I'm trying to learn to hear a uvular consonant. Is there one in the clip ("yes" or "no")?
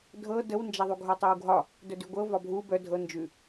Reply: no